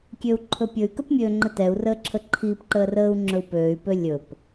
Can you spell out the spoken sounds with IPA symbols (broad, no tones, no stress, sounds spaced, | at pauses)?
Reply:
kʲ øː u̯ ǃʰ ɵ pʲ ɵ y̯ k ə p mʲ øː ŋ͡ǃ ə t ɛ u̯ r əː ǁʰ ə ǃʰ iː p ǃ əː r əː u̯ ŋ͡ǁ ɵ u̯ p øː y̯ p ø lʲ ɵ p